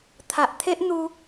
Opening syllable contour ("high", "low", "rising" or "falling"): low